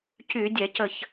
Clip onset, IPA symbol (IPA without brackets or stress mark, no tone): c